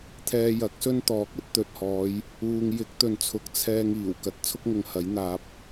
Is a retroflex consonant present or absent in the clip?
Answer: absent